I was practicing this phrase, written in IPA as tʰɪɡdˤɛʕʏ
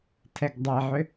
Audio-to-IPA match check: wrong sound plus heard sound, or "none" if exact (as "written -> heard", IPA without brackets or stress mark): ɪ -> ɛ